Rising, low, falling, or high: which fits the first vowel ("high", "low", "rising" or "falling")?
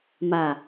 low